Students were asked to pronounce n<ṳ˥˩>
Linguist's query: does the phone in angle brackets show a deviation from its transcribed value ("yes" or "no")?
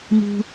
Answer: yes